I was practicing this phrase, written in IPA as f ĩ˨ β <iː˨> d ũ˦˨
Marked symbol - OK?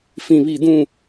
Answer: no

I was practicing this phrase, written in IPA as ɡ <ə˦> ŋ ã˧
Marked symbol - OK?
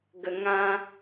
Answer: no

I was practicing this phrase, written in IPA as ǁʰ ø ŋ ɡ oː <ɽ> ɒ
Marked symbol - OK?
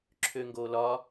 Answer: no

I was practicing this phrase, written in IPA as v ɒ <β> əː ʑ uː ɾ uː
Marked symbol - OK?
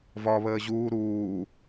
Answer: yes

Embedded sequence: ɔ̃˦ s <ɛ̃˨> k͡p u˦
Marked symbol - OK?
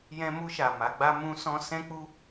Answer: no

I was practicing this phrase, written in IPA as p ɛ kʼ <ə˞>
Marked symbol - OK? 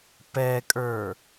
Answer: yes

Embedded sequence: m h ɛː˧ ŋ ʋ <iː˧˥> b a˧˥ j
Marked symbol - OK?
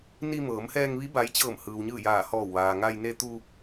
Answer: no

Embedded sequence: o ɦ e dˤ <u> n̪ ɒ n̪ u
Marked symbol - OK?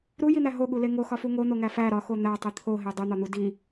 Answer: yes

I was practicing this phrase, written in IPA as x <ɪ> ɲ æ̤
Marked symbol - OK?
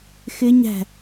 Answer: yes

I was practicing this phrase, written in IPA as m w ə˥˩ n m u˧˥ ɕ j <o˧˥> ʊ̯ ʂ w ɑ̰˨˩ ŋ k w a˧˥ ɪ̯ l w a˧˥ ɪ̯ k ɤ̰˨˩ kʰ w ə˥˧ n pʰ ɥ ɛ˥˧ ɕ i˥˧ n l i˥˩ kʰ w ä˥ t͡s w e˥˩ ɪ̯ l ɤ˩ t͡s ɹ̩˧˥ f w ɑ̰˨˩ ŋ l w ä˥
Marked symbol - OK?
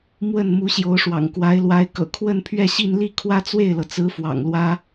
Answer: yes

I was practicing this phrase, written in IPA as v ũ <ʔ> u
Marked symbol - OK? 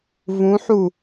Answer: no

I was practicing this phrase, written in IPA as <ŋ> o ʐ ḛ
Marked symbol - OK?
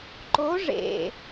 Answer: no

